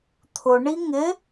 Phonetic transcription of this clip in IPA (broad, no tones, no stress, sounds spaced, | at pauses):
t̪ʰ ʊ ɳ i ŋ ɪ